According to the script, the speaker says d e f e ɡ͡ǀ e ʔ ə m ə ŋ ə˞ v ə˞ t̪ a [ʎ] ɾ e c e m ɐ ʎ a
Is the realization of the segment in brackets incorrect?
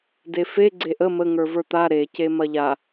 yes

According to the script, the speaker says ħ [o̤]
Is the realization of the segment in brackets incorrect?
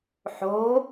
no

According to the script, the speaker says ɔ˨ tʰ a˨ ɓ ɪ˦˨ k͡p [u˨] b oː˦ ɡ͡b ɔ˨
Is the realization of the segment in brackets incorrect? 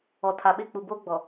no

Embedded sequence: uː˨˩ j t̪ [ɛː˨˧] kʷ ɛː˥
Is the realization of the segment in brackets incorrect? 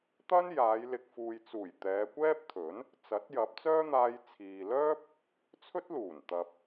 no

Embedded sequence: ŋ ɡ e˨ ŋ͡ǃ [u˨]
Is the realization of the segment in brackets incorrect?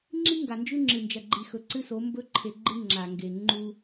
yes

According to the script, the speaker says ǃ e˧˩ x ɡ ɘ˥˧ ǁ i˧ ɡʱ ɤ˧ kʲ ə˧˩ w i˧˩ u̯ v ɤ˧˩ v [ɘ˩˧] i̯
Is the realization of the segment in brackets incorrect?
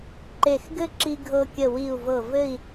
yes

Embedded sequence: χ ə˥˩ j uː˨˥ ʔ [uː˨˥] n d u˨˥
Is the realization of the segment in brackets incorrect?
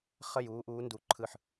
no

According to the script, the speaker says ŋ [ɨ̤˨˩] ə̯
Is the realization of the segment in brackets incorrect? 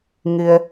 yes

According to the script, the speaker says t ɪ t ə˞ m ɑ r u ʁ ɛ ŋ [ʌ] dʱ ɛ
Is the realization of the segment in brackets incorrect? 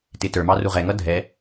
no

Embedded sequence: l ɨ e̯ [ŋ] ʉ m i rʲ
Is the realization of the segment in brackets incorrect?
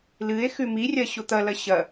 yes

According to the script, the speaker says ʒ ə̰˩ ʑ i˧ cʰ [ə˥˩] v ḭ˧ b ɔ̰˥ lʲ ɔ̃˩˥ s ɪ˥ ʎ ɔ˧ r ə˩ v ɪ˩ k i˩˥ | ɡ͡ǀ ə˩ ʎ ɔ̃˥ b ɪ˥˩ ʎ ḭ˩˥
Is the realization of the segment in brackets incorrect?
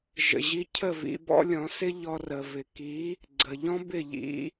no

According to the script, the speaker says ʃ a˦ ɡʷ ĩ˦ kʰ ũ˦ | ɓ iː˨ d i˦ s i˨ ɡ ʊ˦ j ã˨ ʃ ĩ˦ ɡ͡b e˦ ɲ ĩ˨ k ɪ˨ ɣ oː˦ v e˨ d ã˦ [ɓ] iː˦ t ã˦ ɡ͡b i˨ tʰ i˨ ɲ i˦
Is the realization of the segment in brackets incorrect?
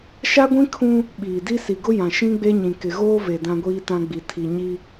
yes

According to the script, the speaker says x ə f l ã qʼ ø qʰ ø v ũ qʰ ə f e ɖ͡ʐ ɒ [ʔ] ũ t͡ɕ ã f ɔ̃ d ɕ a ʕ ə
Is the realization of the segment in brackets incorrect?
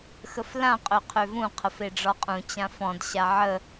yes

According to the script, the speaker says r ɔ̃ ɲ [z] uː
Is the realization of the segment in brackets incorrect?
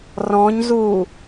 no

